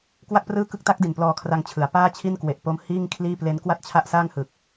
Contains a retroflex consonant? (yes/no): no